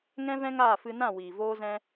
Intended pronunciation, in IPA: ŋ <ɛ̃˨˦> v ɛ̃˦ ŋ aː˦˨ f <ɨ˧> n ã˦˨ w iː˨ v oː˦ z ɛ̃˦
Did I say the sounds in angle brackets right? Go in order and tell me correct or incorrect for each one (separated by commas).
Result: incorrect, correct